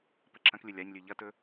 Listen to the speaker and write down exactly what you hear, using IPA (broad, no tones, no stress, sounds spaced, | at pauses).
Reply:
p ɐ ǁʰ ɐ̃ k lʲ ɵ lʲ a ɲ lʲ ʉ ʎ ɐ t ɵ